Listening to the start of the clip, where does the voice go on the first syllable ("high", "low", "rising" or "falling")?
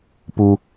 low